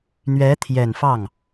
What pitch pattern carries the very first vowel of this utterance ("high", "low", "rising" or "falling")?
rising